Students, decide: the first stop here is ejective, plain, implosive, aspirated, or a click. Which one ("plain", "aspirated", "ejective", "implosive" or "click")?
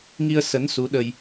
implosive